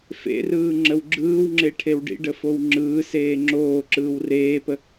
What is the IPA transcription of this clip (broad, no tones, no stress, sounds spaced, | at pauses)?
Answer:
f ḛ r ɯː ŋ͡ǁ ə w ɡ͡ǁ ɯː w ŋ͡ǁ e ʈʰ e w ɖ ḭ ɖ ə f o w ŋ͡ǁ ɯː s eː ŋ͡ǁ oː ǁ ɯː w r eː p ə